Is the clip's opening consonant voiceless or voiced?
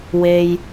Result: voiced